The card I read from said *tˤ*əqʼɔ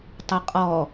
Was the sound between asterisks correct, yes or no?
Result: yes